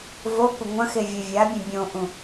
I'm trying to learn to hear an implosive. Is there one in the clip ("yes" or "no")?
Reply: no